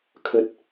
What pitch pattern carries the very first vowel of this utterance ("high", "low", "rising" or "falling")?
low